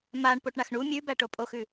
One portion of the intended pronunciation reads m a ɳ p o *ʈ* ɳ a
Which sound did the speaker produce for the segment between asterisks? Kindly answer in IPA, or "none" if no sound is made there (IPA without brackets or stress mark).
ʈ